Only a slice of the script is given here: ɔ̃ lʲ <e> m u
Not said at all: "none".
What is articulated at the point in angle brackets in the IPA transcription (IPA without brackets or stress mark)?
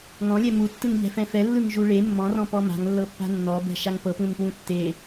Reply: ɛ